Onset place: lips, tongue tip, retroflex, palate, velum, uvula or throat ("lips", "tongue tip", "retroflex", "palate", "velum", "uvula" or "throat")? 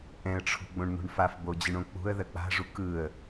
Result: throat